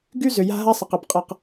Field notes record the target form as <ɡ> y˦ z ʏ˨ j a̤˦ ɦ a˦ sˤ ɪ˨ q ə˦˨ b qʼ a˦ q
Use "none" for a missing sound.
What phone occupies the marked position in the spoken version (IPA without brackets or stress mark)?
ɡ